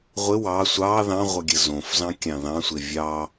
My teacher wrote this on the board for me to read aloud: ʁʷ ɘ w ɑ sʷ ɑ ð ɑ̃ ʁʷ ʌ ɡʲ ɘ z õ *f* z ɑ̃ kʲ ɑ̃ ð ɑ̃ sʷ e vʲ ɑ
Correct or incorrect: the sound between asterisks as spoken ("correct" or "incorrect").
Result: correct